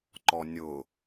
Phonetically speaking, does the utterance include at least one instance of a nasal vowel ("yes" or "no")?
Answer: no